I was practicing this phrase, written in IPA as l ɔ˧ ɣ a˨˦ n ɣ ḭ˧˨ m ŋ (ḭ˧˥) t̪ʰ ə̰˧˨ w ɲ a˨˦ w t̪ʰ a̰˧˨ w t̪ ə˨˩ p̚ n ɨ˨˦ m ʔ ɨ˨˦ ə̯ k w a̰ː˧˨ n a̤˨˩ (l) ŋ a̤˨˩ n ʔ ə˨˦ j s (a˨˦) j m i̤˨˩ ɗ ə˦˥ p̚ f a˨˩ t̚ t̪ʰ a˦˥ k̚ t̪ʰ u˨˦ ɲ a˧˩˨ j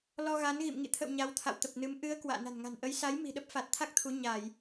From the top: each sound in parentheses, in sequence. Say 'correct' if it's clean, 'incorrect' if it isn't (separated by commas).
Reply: incorrect, incorrect, correct